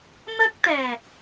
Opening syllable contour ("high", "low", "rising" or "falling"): high